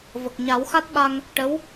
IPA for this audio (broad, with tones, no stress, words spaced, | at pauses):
və˨˩k̚ɲa˨˩˦wxa˦˥t̚ ɓa˧ŋ | ʈə˧˥w